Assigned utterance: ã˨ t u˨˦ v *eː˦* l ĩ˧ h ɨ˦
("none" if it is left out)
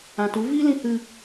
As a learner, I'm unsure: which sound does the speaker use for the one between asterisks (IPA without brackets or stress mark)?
iː˦